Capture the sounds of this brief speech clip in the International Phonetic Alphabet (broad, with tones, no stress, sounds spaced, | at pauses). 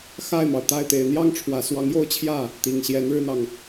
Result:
x a˥˩ ɪ̯ m ɑ˩ ʊ̯ t̪ a˥˩ ɪ̯ t̪ e˨˩ ɪ̯ n̪ j ɑ˥˩ ŋ ʈ͡ʂʰ w ä˨˩ s w ɑ˧˥ ŋ j o˥ ʊ̯ t͡ɕʰ j ä˥˩ | t̪ i˨˩ ŋ ɕ j ɛ˧˥ n ɻ ɻ̩˥ n̪ ɑ˨ ŋ